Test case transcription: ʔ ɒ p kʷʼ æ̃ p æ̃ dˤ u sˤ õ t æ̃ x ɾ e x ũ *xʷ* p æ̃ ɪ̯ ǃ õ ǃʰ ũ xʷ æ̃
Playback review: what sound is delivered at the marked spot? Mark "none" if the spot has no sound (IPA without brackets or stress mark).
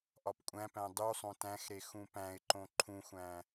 none